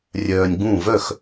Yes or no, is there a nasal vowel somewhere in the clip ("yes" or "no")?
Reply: yes